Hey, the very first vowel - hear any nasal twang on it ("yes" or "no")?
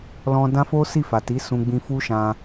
yes